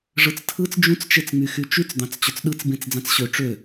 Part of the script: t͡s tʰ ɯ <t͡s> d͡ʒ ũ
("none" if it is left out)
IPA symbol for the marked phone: t͡s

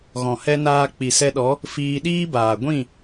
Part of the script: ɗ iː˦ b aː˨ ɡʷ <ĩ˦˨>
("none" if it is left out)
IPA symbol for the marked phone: ĩ˦˨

